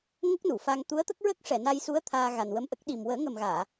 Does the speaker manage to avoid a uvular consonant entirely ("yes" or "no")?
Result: yes